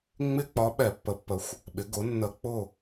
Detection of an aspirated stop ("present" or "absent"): absent